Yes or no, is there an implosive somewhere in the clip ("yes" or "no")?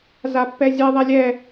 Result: no